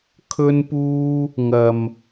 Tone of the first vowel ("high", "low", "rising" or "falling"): high